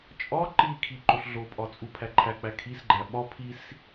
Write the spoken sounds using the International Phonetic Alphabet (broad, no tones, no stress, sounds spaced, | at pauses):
t͡ʃʼ ɒ ǃ i kʰ i ǃ o ɬ ɮ o pʼ ɒ t͡sʼ u pʰ æ ǃʰ æ k͡p æ kʰ i s ɡ͡ǃ æ ɓ ɒ pʰ i s